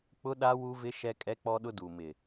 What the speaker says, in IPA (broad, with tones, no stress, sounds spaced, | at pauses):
k͡p ʊ˦ ɗ a˦ w u˦ v ɪ˦ ʃ ɛ˦ kʼ ɛ˦ k͡p ɔ˦ ɗ ʊ˦ d u˨ m ɪ˨